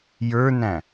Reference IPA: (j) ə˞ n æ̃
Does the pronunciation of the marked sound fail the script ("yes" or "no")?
no